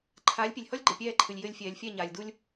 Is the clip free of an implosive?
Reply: yes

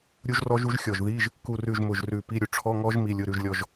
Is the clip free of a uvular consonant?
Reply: yes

